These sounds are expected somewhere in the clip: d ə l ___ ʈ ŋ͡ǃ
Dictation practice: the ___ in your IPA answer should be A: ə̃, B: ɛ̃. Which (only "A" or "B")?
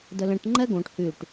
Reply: A